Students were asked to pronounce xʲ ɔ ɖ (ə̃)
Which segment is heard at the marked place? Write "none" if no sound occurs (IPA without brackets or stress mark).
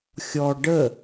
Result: ə